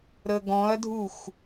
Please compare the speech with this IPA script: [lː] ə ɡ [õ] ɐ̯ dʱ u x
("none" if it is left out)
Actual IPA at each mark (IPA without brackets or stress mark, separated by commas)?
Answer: ɾ, ɔ̃